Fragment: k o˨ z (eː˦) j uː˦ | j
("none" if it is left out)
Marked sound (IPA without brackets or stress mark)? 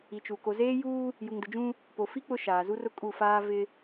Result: eː˦